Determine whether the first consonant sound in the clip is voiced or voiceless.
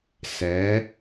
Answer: voiceless